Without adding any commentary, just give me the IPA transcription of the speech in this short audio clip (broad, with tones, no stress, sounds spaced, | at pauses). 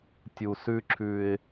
tʲ u˨ s ʉ˦ ǁʰ ʉ˦ ɪ̯